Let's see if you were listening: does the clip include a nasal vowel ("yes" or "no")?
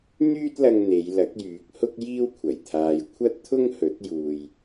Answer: no